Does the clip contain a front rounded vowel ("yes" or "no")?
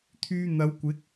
yes